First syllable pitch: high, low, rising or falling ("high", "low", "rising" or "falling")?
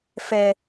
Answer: low